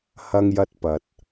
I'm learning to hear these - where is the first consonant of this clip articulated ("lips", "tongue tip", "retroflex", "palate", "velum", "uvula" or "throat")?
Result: throat